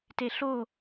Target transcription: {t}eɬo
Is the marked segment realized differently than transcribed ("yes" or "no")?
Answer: no